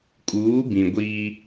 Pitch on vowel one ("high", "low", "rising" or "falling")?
rising